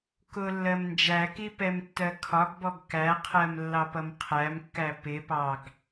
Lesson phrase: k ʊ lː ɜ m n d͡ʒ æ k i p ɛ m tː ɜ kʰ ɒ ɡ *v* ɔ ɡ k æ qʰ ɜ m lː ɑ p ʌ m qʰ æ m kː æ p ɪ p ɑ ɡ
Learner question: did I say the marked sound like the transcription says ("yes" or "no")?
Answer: no